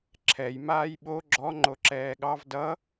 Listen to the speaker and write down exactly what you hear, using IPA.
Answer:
ǁʰ ɛ j m aː j ɓ o ɡ͡ǁ ɔ ŋ͡ǃ o ǁ ɛː ɠ ɑ v d ʌ

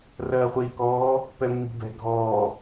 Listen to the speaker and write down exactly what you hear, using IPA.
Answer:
r ɜː χʷ iː k ɔː | p ɛ mː i̤ b ɛ̤ ɡʱ ɔː

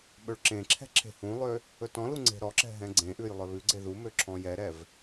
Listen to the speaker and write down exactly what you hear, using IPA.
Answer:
ɓ ɵ ɭ ǁ ẽ ǁʰ ɛ̤ ǁʰ e̤ h ũ lˠ ø | ɵ t ɔ̃ l u ŋ͡ǀ e̤ ɾ ɔ ǁ ɛ̤ ɦ ɛ̃ ɡ͡ǀ ẽ ʔ ʉ j lˠ œ β ʉ ɡ͡ǀ e ð u m ø ǁʰ ɔ̃ j ɛ ɾ ɛ v

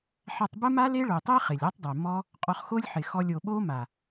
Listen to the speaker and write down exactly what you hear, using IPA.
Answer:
ħ a˧ tˤ b ə˦ m a˦ l e˦ ɭ o˨ tˤ e˦ χ ɪ˨ lʲ ɔ˦ tˤ dˤ e˨ m ɔ˦ | qʼ ɔ˧ χ x o˦ lʲ ħ ɪ˨ x ɔ˧ lʲ o˨ ɓ o˦ m a˨

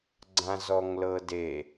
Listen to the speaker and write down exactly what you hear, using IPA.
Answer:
ɡ͡ǀ ã z ɔ ŋ l ɤ d e

